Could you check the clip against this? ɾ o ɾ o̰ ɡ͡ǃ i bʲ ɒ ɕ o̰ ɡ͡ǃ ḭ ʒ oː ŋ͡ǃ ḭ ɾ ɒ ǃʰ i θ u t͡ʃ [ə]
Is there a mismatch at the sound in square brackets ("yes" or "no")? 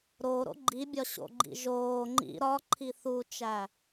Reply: yes